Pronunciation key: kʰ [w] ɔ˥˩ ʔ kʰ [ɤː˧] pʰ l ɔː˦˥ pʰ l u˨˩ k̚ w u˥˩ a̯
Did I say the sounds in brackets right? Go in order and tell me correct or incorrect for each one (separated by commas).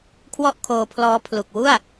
correct, incorrect